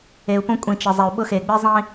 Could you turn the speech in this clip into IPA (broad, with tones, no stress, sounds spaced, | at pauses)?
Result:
e˨ u̯ p õ˦ kʷʼ ĩ˨ t͡ʃ ɪ˨ zˤ e˨ u̯ ɓ ʊ˦ x e˨ ɡ͡b i˦ zˤ ĩ˦